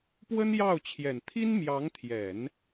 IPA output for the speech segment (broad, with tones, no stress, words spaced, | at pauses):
pwə˥njɑ˥˩ʊ̯ t͡ɕʰjɛ˨˩nt̪ʰi˥nmjɑ˧˥ŋ t̪ʰjɛ˨˩˦n